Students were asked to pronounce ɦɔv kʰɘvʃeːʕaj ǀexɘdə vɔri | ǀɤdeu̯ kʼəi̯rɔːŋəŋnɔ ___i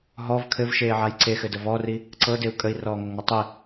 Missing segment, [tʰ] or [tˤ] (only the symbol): tˤ